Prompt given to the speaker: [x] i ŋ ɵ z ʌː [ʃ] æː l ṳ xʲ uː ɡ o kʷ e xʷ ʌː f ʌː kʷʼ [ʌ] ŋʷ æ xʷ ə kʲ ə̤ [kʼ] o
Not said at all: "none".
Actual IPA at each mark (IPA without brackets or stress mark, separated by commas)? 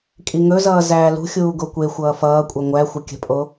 kʼ, z, ʌ, pʼ